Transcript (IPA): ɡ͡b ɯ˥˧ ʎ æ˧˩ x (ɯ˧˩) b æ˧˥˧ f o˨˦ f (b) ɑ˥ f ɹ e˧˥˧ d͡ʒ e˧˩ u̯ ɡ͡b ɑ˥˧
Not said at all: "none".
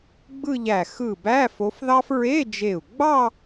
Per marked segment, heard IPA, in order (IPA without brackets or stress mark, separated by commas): ɯ˧˩, ð